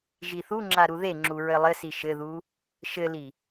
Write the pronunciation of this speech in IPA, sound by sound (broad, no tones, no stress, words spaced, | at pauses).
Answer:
ʒiθuŋ͡ǁa ɾuðeŋ͡ǁu ɹɘlˠɘsi ʃɘðu | ʃɘli